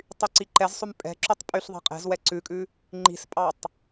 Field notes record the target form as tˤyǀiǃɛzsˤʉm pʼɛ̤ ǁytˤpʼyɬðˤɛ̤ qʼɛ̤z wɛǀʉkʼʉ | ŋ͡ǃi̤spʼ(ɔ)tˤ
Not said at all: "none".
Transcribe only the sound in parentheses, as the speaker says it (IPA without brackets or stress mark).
ɑ